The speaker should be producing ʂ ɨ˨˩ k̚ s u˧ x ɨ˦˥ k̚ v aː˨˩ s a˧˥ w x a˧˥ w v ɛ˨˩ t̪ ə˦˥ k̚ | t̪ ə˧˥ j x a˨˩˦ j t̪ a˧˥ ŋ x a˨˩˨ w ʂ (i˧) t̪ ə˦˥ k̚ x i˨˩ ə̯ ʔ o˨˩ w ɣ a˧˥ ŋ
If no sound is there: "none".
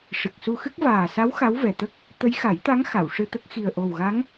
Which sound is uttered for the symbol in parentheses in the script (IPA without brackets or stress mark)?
ɨ˧